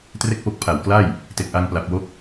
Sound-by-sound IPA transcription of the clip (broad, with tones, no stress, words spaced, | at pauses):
tre˥˩k̚po˦˥k̚pʰa˨˩w kla˥˩j | te˨˩k̚ʔa˧ŋpla˨˩p̚wo˦˥k̚